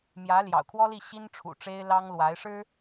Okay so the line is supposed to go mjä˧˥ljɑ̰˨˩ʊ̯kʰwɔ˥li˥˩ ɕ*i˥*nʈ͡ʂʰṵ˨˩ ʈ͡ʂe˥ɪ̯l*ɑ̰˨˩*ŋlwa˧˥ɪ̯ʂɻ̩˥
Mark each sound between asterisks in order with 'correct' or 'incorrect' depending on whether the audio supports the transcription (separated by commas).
correct, incorrect